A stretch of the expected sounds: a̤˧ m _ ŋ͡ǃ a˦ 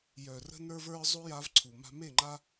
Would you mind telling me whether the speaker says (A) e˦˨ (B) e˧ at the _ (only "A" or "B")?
A